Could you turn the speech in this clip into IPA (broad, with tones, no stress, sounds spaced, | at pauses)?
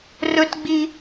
r ɵ˦ t ɡ͡b i˦